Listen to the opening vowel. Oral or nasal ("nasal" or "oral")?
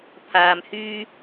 oral